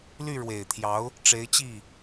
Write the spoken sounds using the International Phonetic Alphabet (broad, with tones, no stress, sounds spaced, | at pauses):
l y˥˩ ɻ w e˨˩ ɪ̯ t̪ʰ j ɑ˧˥ ʊ̯ | ʈ͡ʂ e˧˥ ɪ̯ t͡ɕ i˥˩